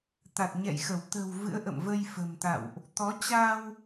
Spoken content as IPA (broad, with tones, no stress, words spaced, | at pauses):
t̪a˨˩t̚ɲɛ̰˧˨jxə˧˩w t̪ə̤˨˩w vɨ̰˧˥ə̯ʔə̰˧˨mvə˧j fə̤˨˩mt̪a̰˧˨wʔ | t̪ɔ˨˦t͡ɕa˧w